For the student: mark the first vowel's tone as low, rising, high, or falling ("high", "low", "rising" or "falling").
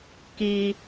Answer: low